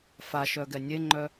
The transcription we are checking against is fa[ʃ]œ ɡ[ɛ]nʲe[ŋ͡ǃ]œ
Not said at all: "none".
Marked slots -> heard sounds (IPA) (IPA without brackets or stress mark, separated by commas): ʃ, ɛ, ŋ͡ǃ